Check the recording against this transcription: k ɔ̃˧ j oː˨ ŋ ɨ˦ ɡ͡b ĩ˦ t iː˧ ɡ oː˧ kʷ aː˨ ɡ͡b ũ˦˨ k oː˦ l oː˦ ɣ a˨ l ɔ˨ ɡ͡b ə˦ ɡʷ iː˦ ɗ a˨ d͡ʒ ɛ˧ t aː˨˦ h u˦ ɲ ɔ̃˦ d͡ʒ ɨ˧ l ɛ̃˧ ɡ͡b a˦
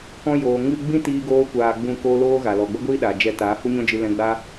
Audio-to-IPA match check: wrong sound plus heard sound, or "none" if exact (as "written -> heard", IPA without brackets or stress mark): none